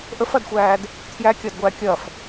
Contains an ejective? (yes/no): no